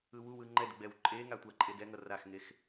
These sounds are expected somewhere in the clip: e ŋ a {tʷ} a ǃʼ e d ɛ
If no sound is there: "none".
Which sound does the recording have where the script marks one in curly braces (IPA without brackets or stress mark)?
tʷ